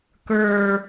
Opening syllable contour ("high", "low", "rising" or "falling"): high